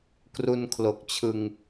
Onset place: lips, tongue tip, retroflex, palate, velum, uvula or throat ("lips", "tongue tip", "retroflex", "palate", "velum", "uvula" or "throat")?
velum